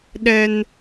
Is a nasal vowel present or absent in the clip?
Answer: absent